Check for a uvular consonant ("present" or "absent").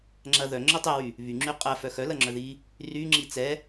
present